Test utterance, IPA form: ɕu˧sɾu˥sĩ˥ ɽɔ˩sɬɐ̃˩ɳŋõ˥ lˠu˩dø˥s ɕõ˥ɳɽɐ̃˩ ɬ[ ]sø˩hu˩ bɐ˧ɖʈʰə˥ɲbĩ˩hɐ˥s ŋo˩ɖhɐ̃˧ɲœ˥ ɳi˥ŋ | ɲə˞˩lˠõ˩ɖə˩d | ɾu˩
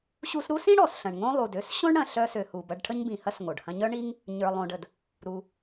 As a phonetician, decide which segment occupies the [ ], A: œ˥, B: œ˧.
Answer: B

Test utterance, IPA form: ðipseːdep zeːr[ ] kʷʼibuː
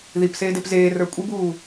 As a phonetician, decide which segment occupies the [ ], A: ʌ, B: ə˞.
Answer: B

